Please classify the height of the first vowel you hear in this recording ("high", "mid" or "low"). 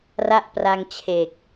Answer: low